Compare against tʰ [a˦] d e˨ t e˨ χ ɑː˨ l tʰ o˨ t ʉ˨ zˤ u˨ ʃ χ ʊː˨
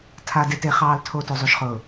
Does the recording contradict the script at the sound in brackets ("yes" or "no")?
yes